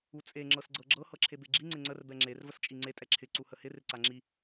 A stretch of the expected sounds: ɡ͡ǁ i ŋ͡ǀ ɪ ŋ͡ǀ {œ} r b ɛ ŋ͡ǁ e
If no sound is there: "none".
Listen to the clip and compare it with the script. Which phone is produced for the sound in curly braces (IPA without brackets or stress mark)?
ə